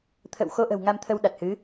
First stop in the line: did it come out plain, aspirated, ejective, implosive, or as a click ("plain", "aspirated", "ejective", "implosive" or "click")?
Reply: aspirated